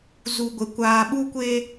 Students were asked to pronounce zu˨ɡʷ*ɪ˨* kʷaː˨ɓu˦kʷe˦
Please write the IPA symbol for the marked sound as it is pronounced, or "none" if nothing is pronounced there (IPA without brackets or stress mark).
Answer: ɪ˨